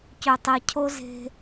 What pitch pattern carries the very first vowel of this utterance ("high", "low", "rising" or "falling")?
low